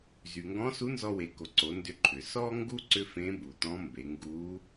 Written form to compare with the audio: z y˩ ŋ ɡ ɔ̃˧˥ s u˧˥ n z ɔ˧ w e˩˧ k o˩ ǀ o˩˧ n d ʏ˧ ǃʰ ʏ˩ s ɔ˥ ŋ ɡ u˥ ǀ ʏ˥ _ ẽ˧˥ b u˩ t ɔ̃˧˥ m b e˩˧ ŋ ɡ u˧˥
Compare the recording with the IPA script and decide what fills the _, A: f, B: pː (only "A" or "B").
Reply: A